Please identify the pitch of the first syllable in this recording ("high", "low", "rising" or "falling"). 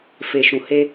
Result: low